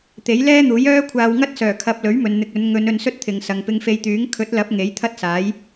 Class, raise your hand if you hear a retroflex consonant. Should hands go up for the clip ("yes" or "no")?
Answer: no